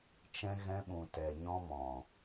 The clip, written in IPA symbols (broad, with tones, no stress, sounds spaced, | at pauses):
t͡ʃ ɛ̃˧ ɣ ɛ̃˧ ɓ ũ˨ t ɛ˨ ɲ ɔ̃˧ m ɔ̃˨